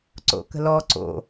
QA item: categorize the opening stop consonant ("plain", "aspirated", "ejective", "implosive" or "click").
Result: click